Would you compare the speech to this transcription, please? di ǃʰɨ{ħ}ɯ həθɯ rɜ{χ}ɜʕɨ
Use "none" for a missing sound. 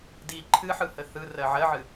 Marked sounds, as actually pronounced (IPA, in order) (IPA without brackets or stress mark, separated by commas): ħ, ʕ